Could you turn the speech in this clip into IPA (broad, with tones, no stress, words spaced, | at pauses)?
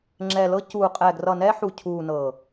ŋ͡ǁɛ˨lɤ˧cuː˨ qʼɛ˨ɡrʌ˨nɛ˧ ħu˨cʰuː˨ nɤ˨